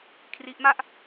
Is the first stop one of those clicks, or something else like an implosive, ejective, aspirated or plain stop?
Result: aspirated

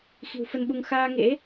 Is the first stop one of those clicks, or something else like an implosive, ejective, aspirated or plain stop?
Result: implosive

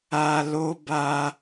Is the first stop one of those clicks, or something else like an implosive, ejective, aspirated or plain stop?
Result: plain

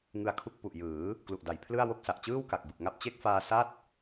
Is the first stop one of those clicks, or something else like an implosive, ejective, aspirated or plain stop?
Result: aspirated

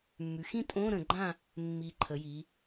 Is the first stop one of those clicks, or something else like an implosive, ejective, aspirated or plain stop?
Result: ejective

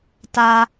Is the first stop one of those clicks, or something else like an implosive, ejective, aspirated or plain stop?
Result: plain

